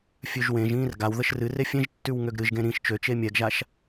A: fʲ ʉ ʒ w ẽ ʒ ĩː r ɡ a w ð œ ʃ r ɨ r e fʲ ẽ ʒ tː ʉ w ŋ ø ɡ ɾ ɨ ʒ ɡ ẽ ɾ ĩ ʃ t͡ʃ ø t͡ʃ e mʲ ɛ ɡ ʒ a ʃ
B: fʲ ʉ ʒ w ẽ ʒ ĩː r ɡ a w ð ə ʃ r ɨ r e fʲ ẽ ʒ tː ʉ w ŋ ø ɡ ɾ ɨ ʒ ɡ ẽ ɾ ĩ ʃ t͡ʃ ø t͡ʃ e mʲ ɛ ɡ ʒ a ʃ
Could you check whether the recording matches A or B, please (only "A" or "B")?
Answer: B